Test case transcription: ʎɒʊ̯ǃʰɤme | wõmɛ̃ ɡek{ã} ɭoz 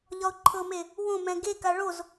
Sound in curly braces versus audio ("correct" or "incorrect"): incorrect